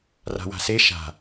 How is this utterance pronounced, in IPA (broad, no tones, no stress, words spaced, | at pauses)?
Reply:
ra̤wa̤se ʃa̤